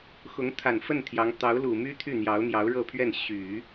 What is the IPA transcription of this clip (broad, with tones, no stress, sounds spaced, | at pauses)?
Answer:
x ʊ˧˥ ŋ t̪ʰ a˨˩ n f ə˥˩ n t̪ʰ j ɑ˧˥ ŋ t̪ ɑ˧˥ ʊ̯ l u˨˩ m y˥ t̪ʰ y˥˩ n̪ j ɑ˧˥ ʊ̯ n̪ j ɑ˧˥ ʊ̯ ɻ ɤ˥˧ pʰ ɥ ɛ˥˩ n ɕ y˨˩˦